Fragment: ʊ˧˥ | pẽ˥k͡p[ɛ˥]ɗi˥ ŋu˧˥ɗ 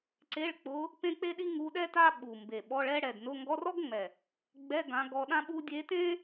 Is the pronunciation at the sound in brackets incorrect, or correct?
incorrect